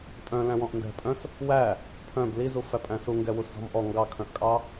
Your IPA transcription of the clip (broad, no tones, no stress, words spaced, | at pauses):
tʼœ̃ læ̃wɔ̃ʔndɛ̤pʼœ̃s | wæ | pʰœ̃b lizufæ pʼæ̃suŋɡɛwus zɔ̤mʔɔ ŋɡɑkʰœ̃ʔkʼɑ